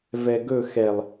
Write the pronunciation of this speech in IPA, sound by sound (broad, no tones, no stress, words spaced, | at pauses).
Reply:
vɛɡɵ xɛlˠ